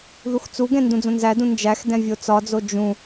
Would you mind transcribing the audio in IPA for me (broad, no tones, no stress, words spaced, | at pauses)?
ðuxt͡suɡɛ̃ ndũd͡zõnzædũ nd͡ʒæxdɛ̃ vʲot͡sɒd͡zo d͡ʒũ